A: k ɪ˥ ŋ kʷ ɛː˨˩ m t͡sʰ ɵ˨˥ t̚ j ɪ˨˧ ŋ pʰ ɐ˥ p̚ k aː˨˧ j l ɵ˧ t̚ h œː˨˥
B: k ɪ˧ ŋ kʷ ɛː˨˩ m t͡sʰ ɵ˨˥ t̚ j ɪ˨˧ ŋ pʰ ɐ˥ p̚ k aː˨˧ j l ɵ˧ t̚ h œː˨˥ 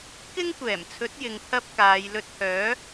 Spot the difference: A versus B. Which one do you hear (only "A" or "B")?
A